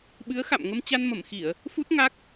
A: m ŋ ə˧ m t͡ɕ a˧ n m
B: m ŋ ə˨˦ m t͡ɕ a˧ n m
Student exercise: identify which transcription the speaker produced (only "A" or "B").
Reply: A